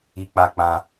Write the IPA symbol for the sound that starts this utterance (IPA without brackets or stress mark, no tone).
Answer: i